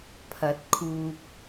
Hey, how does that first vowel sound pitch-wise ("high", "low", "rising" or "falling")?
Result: rising